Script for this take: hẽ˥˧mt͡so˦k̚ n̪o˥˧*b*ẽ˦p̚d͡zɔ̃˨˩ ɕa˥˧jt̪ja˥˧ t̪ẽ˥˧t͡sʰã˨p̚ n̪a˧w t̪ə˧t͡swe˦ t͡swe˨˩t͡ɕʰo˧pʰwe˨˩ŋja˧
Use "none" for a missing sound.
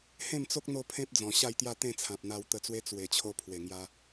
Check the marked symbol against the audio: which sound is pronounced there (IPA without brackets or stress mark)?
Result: pʰ